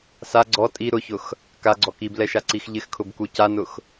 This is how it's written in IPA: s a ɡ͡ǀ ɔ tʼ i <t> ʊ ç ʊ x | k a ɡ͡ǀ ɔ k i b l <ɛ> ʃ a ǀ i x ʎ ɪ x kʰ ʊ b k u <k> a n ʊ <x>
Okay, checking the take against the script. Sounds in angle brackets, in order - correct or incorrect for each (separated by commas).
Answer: incorrect, correct, incorrect, correct